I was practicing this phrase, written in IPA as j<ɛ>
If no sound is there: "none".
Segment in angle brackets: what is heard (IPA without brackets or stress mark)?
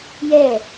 ɛ